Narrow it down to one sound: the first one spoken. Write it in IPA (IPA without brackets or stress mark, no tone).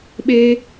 ɓ